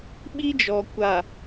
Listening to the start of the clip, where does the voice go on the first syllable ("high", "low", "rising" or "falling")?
high